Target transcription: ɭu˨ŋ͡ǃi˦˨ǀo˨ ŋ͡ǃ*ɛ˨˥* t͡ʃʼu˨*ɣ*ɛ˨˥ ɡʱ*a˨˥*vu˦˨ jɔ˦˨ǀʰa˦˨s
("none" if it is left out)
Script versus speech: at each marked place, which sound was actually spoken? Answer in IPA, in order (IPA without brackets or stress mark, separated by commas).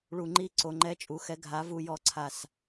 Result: ɛ˨˥, x, a˨˥